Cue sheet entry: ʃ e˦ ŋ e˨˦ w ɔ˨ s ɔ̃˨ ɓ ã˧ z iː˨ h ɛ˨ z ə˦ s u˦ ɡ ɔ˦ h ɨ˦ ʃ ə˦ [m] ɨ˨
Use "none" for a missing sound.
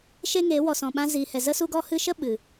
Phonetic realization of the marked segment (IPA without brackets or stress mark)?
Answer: ɓ